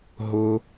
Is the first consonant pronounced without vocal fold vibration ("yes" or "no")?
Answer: no